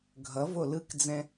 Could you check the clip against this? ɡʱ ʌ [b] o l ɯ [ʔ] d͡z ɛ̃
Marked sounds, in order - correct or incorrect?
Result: incorrect, incorrect

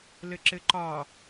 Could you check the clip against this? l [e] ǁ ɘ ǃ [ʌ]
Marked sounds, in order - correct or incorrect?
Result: incorrect, incorrect

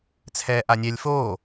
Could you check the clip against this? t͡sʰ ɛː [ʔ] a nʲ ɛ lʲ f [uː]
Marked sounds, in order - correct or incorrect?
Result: correct, incorrect

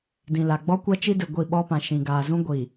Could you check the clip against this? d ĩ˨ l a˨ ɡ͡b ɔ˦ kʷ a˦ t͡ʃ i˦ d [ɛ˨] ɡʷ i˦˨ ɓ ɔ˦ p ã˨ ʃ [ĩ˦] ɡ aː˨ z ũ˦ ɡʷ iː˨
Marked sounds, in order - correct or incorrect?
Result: incorrect, incorrect

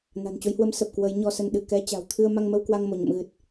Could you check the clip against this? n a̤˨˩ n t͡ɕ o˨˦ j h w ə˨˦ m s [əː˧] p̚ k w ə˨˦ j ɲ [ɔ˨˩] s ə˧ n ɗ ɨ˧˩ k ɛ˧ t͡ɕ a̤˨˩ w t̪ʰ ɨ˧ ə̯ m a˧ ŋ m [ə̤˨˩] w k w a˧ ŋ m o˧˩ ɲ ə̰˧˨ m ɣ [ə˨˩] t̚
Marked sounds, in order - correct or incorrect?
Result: incorrect, incorrect, incorrect, incorrect

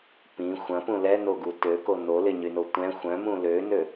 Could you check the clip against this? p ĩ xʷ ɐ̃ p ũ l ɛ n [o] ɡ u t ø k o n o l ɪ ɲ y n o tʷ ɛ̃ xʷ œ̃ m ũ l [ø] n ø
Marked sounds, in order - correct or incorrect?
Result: correct, correct

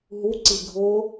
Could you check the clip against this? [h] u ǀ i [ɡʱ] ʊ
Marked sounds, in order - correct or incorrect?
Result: incorrect, correct

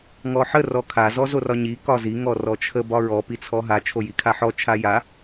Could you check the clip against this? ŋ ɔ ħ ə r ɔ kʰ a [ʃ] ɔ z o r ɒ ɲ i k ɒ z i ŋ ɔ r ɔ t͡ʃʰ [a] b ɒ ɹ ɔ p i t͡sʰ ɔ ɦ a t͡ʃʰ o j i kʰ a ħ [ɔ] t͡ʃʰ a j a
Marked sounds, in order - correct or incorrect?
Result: incorrect, incorrect, correct

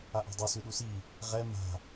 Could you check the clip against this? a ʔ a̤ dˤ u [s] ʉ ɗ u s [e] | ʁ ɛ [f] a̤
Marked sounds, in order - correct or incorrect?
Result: correct, incorrect, incorrect

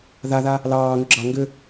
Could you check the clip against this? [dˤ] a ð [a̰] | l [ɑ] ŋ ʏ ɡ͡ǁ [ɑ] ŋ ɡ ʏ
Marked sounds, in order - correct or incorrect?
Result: incorrect, incorrect, incorrect, correct

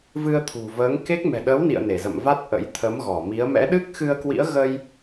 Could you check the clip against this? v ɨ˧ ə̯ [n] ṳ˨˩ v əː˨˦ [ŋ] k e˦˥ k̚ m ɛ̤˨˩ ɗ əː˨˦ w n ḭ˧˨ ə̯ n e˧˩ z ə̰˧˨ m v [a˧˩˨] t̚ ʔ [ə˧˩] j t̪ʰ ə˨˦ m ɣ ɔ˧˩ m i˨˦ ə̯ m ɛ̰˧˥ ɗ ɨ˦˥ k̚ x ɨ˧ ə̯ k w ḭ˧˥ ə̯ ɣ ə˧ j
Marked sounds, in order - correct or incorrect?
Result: incorrect, correct, incorrect, incorrect

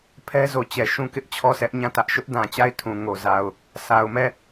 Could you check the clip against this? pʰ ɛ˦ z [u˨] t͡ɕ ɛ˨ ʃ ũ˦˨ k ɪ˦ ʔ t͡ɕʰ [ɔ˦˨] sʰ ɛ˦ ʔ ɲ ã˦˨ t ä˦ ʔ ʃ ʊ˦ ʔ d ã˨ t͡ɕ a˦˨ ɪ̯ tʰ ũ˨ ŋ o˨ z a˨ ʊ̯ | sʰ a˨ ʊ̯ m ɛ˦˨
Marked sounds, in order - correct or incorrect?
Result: incorrect, correct

